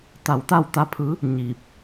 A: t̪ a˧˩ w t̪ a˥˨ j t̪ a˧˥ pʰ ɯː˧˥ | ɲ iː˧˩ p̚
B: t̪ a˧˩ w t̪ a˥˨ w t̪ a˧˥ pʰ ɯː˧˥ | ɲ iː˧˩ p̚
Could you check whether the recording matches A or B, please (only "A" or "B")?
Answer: B